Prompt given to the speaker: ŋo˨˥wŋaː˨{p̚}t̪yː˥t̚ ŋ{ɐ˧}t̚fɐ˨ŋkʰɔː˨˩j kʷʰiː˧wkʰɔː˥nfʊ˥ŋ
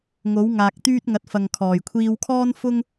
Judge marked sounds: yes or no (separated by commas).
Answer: no, no